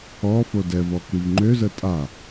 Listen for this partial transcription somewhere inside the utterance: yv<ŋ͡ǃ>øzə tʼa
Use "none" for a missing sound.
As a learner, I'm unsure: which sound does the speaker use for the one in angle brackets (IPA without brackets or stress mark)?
ŋ͡ǃ